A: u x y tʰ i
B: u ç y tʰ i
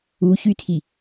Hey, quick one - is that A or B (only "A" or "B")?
B